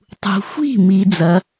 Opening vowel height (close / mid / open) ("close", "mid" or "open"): close